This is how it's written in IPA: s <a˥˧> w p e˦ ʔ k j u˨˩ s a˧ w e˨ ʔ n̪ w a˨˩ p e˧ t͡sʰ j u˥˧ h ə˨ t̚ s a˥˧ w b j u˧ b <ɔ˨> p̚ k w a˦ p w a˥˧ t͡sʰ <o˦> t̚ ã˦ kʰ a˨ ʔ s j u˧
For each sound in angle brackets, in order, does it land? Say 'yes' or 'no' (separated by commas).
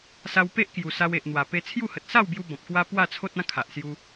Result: no, no, yes